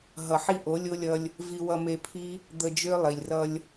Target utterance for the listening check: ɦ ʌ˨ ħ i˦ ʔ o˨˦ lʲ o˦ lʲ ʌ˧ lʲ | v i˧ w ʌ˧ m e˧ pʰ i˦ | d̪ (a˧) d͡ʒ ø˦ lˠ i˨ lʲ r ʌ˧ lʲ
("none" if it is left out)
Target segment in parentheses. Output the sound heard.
ə˧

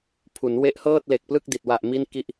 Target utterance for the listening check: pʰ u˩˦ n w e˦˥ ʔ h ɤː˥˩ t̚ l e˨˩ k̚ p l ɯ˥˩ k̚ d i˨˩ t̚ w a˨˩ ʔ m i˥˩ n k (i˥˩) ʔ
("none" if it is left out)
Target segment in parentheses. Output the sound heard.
i˥˩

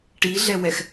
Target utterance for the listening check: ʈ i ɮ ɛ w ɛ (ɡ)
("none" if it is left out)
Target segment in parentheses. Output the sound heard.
x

